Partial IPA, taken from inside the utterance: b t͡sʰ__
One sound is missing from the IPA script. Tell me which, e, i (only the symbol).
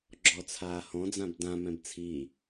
i